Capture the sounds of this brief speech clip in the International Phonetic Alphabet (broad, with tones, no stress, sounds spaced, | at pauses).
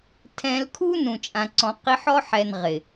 tʰ ɛ̃˧ l kʰ u˦ n ũ˨ t͡ʃʼ ã˨ ǀ ɔ̃˨ q i˧ ħ ɔ˦ ħ ɛ˨ n ʁ ɪ˨